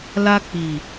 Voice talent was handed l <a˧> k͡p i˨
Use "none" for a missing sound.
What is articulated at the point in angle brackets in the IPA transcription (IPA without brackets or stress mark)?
a˧